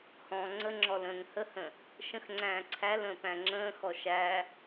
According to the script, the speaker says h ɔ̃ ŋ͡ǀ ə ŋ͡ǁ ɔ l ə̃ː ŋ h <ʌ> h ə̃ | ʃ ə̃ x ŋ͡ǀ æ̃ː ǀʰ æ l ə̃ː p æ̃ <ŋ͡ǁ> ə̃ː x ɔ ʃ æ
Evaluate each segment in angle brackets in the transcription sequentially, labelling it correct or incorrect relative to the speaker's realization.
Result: incorrect, correct

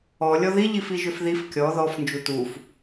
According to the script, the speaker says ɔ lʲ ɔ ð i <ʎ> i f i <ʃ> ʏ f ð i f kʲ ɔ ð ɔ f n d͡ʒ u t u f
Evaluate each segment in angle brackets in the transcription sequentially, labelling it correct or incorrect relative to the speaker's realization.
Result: correct, incorrect

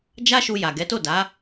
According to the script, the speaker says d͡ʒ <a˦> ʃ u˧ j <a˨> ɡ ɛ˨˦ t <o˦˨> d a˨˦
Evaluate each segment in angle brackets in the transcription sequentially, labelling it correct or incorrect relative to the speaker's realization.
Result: correct, correct, correct

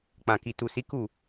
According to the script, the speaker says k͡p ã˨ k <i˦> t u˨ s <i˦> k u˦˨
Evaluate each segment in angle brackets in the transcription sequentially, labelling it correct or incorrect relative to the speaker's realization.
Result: incorrect, incorrect

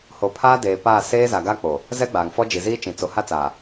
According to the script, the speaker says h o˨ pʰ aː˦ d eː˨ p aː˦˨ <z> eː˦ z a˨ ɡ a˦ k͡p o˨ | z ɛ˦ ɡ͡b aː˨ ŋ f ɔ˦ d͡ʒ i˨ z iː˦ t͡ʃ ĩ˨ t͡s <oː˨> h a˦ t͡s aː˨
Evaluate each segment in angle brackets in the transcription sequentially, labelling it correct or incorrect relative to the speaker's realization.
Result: incorrect, incorrect

